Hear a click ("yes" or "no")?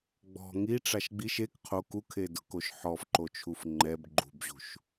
yes